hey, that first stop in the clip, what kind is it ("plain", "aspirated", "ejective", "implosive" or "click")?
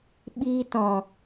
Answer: implosive